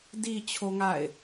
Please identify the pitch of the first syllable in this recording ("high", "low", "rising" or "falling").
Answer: low